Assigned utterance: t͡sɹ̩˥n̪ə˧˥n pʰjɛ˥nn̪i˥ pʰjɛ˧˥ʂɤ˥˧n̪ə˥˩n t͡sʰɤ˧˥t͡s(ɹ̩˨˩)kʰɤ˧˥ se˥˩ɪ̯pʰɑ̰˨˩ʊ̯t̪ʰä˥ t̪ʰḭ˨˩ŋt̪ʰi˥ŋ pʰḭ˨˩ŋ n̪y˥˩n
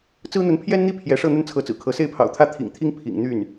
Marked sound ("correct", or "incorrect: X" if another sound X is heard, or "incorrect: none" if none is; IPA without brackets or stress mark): correct